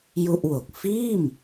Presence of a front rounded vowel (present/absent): absent